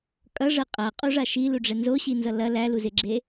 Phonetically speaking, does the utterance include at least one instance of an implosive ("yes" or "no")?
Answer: no